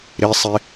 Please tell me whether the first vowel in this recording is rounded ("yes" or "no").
no